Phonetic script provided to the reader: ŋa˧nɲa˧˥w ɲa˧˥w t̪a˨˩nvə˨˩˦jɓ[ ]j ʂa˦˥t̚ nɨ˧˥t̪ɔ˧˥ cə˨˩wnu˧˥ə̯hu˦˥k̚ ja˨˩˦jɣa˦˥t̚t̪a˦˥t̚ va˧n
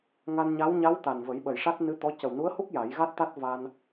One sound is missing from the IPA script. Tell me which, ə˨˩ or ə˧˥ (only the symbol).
ə˨˩